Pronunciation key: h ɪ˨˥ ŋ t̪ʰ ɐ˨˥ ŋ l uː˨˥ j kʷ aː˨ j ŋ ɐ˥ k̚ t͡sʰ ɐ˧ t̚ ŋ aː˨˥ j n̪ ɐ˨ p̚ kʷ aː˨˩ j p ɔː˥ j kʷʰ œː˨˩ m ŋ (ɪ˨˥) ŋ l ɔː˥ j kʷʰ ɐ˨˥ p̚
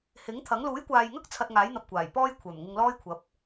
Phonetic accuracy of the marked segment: incorrect: ɪ˧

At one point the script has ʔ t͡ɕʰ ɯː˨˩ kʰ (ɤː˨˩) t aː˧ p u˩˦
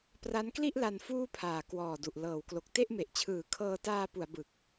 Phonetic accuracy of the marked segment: incorrect: ɤː˧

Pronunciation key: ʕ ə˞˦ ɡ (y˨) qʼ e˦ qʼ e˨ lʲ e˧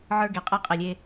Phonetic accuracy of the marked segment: incorrect: e˨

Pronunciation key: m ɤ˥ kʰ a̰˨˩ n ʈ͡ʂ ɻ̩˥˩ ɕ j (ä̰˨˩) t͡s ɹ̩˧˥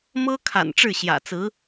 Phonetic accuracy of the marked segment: correct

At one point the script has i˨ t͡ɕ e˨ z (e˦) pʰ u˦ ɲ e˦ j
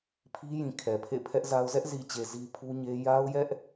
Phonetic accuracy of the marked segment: incorrect: i˦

